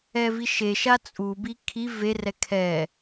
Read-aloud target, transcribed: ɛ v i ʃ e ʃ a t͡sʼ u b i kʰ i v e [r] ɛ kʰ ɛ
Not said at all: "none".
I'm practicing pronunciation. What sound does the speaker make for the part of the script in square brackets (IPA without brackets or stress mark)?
r